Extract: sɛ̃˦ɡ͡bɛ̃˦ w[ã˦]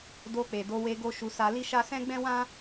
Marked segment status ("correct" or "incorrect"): correct